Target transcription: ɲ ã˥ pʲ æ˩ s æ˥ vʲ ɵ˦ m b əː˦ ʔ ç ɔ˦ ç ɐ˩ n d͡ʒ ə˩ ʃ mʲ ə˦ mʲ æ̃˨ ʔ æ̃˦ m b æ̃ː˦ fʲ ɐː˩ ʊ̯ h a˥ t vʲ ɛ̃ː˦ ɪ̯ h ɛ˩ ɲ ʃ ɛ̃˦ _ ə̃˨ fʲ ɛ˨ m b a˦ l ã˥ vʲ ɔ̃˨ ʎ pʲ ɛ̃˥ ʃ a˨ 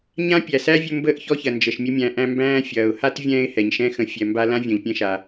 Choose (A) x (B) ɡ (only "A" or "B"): A